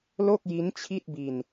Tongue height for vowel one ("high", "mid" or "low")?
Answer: mid